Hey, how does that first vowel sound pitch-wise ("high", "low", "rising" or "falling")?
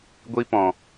high